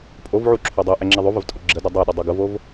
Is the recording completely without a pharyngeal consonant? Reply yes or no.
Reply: no